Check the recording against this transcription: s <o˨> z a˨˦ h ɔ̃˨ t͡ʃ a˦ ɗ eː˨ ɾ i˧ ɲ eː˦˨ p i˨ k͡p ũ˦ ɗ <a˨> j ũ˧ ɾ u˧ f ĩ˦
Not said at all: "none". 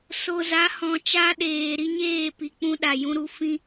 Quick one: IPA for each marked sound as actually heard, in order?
o˨, a˨

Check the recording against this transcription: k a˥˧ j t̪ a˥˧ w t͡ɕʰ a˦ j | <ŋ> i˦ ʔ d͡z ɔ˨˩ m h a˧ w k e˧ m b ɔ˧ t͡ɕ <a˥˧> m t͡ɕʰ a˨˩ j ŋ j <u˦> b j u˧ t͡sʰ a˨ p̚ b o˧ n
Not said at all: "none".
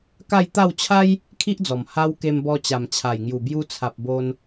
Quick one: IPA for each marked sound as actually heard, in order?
kʰ, a˨˩, u˨˩

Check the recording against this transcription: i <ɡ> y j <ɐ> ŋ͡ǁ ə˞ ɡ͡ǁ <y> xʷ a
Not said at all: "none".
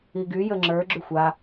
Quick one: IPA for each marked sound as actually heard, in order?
ɡ, ə, y

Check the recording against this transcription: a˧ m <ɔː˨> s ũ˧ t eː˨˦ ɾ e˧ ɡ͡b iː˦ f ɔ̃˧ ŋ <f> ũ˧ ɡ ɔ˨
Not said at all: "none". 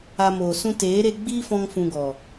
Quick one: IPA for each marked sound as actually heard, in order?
oː˨, f

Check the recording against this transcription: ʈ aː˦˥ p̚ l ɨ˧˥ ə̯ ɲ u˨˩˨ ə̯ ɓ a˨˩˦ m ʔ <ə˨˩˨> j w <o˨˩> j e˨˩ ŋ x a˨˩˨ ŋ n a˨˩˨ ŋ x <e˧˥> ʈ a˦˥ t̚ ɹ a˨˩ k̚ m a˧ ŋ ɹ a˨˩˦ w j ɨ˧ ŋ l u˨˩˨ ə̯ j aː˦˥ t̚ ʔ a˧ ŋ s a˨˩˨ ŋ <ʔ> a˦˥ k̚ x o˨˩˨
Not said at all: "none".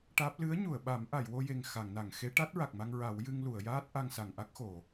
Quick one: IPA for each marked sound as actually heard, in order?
a˨˩˨, o˧, e˧˥, ʔ

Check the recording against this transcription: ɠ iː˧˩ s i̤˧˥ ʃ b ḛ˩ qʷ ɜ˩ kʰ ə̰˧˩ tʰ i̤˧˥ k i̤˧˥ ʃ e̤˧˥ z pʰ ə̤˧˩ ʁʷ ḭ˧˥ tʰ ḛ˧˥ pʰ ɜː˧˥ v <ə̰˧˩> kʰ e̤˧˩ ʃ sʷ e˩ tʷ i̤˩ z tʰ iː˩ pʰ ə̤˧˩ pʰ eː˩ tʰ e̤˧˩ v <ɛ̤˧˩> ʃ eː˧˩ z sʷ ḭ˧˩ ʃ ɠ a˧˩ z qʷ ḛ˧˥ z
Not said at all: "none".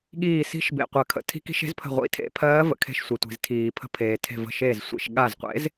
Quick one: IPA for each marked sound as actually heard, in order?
ə̰˩, ə̤˧˩

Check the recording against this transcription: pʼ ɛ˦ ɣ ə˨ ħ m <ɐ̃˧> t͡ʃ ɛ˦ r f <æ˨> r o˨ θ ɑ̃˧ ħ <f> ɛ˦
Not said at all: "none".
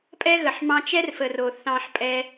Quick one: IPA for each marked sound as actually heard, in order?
ɑ̃˧, ə˨, pʼ

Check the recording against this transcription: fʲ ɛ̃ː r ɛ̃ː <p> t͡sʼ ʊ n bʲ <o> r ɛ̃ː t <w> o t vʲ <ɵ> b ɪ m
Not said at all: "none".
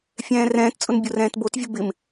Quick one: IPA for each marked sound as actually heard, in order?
t, o, b, ʊ

